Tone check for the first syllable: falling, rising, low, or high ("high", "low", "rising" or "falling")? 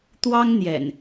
high